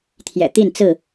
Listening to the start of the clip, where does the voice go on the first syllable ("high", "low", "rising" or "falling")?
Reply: low